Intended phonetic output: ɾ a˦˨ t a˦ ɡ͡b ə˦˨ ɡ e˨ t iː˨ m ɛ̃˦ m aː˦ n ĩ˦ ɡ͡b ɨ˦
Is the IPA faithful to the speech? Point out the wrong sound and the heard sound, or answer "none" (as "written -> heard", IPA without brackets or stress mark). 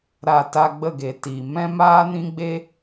ɨ˦ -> e˦